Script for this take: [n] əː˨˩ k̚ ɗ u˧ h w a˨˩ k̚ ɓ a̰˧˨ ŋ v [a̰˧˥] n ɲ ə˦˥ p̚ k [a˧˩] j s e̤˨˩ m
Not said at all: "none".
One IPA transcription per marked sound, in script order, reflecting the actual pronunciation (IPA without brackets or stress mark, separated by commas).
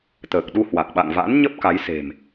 t̪, a̰˧˥, a˨˦